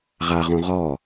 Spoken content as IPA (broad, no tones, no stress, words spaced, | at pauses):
ʁaʁõ ʁɔ